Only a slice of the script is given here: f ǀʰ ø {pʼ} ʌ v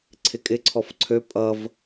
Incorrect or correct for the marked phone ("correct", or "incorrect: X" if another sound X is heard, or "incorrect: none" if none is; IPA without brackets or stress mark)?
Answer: correct